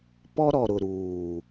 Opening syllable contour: high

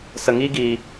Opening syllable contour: low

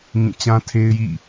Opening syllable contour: falling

